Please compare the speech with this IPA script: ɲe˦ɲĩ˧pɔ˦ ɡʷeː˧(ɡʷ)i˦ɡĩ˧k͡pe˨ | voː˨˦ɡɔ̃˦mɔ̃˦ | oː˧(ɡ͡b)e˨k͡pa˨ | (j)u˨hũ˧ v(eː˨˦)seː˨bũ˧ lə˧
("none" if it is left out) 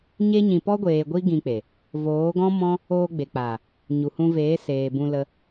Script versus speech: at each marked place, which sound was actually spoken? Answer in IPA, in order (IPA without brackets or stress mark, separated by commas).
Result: ɡʷ, ɡ͡b, ɲ, eː˨˦